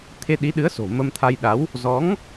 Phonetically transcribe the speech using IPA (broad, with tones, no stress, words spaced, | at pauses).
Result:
t̪ʰe˧ɗi˨˦ɗɨ˨˦ə̯so̤˨˩ mə˧mt̪ʰa˧jɗa˨˦w | zɔ˨˦ŋ